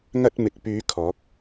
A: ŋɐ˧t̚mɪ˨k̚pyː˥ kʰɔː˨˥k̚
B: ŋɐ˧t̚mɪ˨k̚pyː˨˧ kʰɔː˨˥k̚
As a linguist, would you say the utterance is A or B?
B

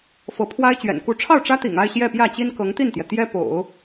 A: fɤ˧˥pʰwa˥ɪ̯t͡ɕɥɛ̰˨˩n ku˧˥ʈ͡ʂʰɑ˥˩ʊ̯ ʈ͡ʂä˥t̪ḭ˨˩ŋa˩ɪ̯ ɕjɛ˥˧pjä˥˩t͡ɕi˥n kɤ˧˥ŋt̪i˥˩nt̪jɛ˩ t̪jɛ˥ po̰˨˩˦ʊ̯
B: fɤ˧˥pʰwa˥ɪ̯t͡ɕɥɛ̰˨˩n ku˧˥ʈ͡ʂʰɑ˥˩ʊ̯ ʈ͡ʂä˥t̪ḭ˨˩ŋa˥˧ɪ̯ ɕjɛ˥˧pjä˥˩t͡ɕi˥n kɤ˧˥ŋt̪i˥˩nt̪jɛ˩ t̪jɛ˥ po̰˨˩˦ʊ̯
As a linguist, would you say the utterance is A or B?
B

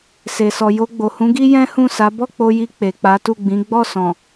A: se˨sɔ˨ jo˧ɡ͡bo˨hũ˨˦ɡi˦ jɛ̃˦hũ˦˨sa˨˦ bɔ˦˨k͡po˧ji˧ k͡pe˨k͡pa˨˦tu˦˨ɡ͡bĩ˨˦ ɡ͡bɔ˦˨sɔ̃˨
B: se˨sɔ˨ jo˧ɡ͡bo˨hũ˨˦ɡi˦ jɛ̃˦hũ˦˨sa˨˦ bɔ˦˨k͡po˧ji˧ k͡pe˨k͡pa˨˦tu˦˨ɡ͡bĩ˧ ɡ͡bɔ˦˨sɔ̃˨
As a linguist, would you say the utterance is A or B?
A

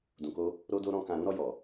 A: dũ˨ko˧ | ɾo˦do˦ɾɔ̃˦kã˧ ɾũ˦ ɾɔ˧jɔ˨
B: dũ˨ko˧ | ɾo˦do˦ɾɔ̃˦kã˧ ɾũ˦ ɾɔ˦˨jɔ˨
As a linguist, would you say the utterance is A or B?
A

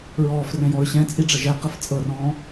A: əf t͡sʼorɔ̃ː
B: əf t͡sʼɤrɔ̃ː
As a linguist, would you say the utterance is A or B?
B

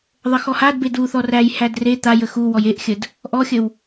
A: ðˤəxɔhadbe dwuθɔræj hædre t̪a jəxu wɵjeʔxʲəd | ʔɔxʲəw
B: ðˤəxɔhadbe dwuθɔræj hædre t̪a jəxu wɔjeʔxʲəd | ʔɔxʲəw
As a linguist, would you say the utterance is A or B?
B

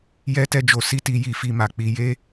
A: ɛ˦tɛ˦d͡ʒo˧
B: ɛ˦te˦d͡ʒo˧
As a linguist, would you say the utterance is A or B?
A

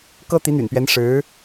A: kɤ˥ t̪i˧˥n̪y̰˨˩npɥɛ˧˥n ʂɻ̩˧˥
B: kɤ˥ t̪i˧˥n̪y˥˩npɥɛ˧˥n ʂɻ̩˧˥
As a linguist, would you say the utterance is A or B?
A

